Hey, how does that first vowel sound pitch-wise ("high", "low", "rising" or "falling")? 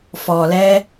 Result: low